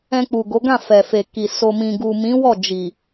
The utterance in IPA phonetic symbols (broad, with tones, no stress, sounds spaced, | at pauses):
ɛ̃˧ k͡p u˨ ɡ o˨˦ ɡ ã˦˨ f ɛ˨ f e˨ k i˨ s o˨ m ĩ˨ ɡ u˨ m ĩ˨˦ w ɔ˦˨ d͡ʒ i˨